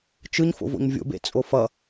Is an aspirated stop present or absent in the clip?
absent